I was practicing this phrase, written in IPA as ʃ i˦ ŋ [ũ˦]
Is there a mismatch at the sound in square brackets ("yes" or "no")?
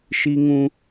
no